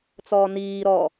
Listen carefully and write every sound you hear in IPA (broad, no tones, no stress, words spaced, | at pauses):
t͡sɔːniː ɾɔ